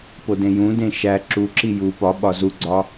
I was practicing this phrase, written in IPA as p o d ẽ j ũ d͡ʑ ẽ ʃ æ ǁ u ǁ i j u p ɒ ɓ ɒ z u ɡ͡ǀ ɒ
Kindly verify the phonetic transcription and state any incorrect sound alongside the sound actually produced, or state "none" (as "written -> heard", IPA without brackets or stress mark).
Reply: d͡ʑ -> d